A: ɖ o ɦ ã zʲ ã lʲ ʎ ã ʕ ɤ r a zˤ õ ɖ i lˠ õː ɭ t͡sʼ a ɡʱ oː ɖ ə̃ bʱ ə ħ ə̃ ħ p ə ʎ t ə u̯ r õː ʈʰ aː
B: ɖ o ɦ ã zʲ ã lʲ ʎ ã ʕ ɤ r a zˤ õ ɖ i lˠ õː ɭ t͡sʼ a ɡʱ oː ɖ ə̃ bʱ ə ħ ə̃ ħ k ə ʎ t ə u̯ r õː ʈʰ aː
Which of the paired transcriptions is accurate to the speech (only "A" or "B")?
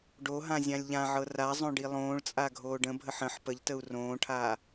A